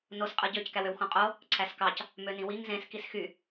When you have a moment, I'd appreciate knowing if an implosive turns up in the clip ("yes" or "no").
no